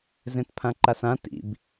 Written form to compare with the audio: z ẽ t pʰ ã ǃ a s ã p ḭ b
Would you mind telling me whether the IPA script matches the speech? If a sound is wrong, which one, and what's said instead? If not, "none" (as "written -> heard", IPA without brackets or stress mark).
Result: p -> t